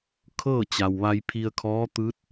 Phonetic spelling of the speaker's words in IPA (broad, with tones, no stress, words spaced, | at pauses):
kʰɤː˥˨t͡ɕa˩wʋa˧j pʰi˧ə̯kʰɔː˧˥t̪ɯː˧˥t̚